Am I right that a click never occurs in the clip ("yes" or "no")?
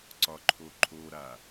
no